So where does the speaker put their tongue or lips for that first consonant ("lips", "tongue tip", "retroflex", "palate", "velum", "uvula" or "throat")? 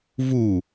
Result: lips